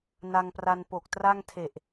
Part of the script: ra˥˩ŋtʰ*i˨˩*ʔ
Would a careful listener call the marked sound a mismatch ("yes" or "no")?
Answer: yes